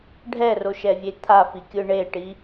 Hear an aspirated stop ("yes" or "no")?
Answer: yes